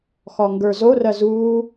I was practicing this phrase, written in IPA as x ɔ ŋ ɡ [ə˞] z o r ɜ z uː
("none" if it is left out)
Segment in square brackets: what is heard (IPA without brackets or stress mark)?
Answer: ə˞